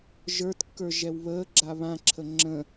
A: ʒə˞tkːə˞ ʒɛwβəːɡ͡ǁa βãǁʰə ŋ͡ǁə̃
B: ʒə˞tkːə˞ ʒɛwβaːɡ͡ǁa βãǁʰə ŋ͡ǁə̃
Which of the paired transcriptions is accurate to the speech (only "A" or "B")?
A